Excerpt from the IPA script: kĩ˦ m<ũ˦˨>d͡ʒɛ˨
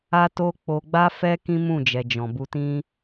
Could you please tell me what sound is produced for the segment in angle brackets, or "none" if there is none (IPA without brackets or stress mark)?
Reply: ũ˦˨